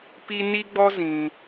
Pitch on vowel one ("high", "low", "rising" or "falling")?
high